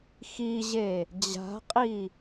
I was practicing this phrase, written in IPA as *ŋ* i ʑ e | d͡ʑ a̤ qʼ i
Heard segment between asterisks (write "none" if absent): x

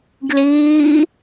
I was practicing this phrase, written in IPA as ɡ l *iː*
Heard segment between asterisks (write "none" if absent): iː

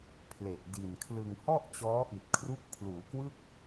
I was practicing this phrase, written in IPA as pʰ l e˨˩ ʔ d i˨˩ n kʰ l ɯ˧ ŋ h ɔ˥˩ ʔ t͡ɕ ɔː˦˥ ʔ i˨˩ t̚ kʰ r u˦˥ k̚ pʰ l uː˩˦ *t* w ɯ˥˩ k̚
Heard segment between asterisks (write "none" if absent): k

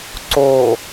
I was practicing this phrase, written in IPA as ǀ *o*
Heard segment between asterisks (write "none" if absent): o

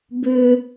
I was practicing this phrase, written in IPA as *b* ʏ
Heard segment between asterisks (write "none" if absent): b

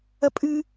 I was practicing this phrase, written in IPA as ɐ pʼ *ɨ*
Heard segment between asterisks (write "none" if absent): ɨ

